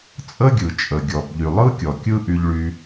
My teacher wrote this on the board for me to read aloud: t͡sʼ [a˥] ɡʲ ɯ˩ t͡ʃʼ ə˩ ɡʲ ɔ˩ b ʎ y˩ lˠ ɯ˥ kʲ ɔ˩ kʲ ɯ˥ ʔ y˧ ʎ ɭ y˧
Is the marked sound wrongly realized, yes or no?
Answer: yes